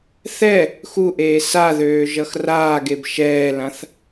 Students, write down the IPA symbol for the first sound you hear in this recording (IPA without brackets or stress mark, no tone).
θ